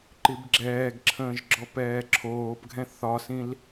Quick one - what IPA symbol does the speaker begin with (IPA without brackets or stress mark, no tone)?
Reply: ǃ